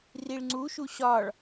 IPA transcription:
riɭŋ͡ǀuʃu ɕɒɭ

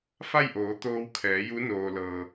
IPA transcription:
fa˥˨jʔoː˩˧ t̪oː˧wkʰɛː˩˧ju˧˥ noː˩lɤː˩

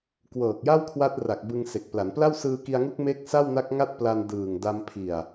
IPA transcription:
kwɤː˨˩k̚ja˥˩wkʰwa˦˥t̚ra˨˩k̚ bɯ˧ŋse˨˩k̚ pla˩˦npla˥˩w sɯː˧ki˧a̯ŋu˦˥k̚ me˦˥k̚ sa˥˩wna˦˥k̚ŋa˥˩t̚ pla˧n dɯː˨˩ŋda˧m pʰi˨˩a̯

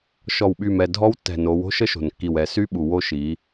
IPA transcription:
ʃɔ˨wɓy˨mɛ˨ dʱɔ˦wtːɛ̤˨no˨˦w o̤˦ʃə˦ʃo̤˨nkːi˨w ɛ˨sy˦ɓu˨ wo˦ʃi˨˦

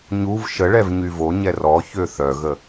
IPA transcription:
ɲuv ʃəɭɛv ɲyvoɲɛ rɔçø θœɣə

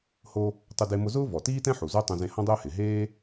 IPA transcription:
ho˧ | tˤʊ˧de˧mʊ˧zʊː˥ vɔ˩tiː˥tɛ̃˥ħu˩ zo˥ tˤõ˧zẽ˧ hɔ̃˧dˤʊː˧hɪ˩ ɦeː˥

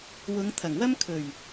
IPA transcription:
wʊ˨˧ŋ t̪ʰɐ˨˩ŋwɐ˥m kʰɵ˨˩ɥ

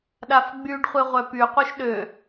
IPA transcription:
ɗafɡ͡byɖχʷe ʁʷœpyqʷœʃ ɗø

